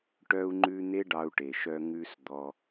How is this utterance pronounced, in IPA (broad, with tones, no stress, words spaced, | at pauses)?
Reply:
ʈœ˧u̯ŋ͡ǃʉ˧ n̪e˦ɖɑ˧u̯ʈe˨ʃœ˧ ŋʉ˧s d̪ɔ˧